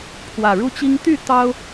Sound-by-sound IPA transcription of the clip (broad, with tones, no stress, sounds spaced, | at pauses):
pʰ w ä˨˩ ɻ u˦ t͡ɕ i˦ ŋ t̪ y˥˨ t̪ ɑ˦ ʊ̯